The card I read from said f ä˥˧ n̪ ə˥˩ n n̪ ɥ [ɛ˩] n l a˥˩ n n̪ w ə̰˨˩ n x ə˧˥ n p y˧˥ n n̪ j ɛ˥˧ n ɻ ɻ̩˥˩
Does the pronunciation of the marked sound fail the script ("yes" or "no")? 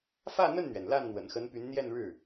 no